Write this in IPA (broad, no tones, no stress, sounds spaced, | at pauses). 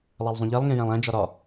lˠ æ lˠ zˤ ũ ʎ e lˠ ŋ ẽ j æ̃ lˠ æ̃ d͡ʒ ɒ ɾ ɒ